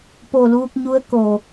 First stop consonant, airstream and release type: plain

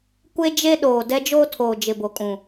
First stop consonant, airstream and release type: plain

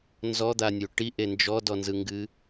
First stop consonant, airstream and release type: plain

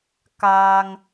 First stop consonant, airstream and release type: plain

